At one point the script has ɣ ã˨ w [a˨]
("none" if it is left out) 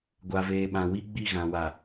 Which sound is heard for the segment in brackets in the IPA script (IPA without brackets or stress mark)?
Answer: a˨